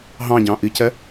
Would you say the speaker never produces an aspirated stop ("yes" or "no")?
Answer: yes